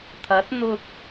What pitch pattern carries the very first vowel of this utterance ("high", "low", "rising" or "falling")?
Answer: rising